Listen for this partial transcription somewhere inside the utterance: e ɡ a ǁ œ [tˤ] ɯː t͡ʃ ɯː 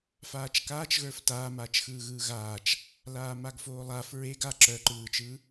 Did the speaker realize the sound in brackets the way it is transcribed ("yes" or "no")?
no